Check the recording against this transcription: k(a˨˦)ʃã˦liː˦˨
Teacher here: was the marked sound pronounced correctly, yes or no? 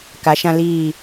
yes